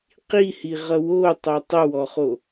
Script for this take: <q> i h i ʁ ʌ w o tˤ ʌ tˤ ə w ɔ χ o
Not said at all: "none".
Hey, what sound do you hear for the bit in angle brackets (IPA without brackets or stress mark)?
q